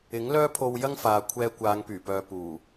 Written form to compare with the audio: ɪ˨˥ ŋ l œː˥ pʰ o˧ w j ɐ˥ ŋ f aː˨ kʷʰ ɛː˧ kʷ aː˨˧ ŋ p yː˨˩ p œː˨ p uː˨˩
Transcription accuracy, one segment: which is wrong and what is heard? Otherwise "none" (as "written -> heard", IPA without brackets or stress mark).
none